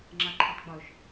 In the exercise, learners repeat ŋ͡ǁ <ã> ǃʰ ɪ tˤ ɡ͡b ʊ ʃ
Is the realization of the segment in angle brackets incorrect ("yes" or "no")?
yes